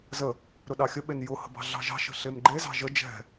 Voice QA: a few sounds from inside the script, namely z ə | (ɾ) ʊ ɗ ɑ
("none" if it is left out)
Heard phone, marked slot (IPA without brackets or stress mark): ɾ